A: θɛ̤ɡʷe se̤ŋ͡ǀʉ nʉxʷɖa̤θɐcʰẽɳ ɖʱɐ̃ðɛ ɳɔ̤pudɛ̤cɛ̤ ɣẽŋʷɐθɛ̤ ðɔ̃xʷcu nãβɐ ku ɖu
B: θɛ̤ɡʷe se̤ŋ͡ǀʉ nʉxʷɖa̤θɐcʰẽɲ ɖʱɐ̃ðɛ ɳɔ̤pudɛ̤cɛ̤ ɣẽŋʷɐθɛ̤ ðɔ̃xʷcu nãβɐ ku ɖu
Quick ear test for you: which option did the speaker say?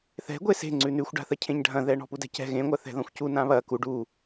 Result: B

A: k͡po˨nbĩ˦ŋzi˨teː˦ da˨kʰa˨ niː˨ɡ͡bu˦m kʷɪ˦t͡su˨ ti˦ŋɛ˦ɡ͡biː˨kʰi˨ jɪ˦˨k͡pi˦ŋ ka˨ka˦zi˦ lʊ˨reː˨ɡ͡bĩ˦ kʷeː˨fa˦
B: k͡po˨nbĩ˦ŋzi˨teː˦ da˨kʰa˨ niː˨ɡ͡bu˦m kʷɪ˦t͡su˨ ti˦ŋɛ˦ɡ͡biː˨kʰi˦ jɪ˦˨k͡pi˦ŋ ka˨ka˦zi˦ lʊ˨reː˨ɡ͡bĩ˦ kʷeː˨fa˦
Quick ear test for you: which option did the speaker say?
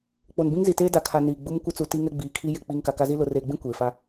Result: B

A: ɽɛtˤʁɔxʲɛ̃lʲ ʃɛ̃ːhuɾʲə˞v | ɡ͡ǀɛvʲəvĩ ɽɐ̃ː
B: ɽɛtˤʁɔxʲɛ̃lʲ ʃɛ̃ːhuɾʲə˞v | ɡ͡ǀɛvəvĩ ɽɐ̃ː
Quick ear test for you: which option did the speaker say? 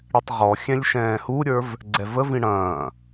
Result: B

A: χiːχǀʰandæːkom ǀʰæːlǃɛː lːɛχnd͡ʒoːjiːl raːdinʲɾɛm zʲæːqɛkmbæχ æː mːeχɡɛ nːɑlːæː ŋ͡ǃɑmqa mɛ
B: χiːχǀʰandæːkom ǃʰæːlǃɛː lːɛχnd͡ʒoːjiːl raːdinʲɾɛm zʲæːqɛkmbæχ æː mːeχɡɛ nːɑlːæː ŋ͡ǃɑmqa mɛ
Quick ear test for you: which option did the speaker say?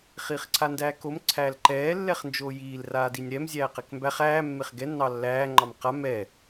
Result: A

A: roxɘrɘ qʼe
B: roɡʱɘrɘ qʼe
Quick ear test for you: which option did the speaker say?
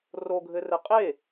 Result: B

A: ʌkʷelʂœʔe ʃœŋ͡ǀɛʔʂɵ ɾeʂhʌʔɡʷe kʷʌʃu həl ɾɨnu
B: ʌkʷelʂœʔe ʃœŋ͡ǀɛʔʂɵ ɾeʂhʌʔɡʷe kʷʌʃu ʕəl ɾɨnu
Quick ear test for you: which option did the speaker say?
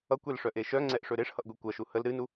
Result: A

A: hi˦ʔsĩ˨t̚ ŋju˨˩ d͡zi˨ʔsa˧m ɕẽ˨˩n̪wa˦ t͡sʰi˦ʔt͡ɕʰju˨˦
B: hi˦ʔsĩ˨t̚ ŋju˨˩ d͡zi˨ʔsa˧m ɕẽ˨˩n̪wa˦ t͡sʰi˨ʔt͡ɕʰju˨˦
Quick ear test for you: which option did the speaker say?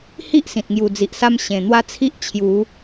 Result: A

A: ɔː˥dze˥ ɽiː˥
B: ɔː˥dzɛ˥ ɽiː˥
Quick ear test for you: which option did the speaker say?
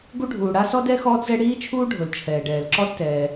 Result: B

